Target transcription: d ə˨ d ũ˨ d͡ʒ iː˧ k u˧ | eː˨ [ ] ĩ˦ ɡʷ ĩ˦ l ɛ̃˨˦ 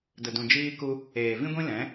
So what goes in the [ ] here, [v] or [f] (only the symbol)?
v